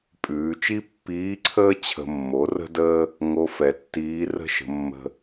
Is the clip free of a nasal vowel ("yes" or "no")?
yes